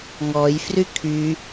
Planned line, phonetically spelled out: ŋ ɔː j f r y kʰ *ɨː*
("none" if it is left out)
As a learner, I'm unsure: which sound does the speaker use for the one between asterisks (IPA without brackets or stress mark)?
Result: yː